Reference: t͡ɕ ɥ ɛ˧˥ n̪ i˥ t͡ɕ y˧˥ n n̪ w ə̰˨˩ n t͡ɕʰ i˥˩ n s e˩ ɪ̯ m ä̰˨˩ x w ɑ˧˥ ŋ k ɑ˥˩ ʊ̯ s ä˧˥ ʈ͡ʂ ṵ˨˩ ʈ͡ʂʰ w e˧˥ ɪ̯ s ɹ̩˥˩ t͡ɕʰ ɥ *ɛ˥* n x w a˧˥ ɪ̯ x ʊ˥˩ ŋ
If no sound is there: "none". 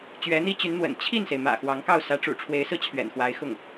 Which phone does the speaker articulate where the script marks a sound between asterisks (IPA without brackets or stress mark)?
ɛ̰˨˩